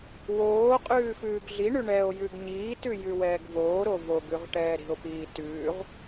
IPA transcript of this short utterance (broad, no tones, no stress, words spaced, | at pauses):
woː qʼʉːfʉːɡɮiɳʉ ɳɛo̯ jʉɡɲiːtʉ jʉwɛːɡvoːɾo voɡ ʉʁʈɛːɾi̤o̯piː tʉːʁ